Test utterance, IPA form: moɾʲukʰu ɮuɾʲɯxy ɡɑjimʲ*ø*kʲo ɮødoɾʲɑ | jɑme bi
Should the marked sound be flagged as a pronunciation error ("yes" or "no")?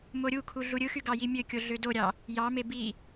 no